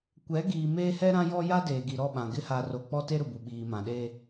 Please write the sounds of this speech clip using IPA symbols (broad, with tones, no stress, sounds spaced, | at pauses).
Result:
kʷ ɛ˨˦ ɡ iː˨ m eː˦ h ɛ˦ ɾ ã˦ j ɔ˦ j a˦ d eː˨ ɡ i˨ ɾ ɔ˦˨ ɓ ã˨ ɡ ɪ˦ h a˨ r o˨ k͡p ɔ˦ t e˦ ɾ ʊ˨ b u˨ ɓ iː˨ m ã˨ ɗ e˦